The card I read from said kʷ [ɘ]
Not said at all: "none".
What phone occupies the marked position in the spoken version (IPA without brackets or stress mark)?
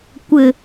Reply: ɘ